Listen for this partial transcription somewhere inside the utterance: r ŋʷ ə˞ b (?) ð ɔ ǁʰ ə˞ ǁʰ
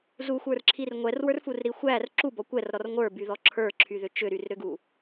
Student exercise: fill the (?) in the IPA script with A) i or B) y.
B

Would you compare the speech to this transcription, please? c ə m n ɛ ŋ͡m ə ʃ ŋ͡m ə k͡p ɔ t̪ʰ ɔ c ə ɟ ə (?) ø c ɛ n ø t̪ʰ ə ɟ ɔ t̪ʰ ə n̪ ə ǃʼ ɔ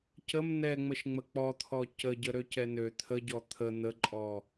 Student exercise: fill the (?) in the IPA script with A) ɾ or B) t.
A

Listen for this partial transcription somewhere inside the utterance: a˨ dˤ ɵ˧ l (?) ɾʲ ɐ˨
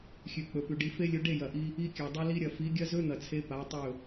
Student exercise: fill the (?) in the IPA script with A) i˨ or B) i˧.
B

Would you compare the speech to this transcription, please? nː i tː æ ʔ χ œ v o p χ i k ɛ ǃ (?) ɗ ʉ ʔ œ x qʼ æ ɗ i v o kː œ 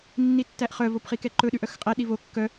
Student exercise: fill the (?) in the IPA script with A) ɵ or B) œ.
A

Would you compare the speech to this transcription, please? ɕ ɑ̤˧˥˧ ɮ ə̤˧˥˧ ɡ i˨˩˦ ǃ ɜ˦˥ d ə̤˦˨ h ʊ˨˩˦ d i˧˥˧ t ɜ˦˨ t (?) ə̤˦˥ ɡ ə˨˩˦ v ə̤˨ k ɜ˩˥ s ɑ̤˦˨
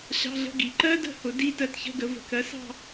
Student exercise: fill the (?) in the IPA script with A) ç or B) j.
A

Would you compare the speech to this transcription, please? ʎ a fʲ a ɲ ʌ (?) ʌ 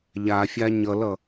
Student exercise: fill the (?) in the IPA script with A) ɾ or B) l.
B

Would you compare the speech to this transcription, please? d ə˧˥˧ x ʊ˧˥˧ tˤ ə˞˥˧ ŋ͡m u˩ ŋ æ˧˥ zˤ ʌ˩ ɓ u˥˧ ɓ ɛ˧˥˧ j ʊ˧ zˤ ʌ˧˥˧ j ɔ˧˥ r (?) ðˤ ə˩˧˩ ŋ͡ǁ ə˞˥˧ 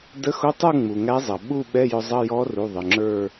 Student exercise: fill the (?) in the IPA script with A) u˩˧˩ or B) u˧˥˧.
A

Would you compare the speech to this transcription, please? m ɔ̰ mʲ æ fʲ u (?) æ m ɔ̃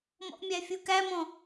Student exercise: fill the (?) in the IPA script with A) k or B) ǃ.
A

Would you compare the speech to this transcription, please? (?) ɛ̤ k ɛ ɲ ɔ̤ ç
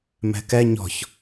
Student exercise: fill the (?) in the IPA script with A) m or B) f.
A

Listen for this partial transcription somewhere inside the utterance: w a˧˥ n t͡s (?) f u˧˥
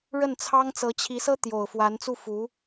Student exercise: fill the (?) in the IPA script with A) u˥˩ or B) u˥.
A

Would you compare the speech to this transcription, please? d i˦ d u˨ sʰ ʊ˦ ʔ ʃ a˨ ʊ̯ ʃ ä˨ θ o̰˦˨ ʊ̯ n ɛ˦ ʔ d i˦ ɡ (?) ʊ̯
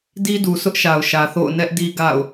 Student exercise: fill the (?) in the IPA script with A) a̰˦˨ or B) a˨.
A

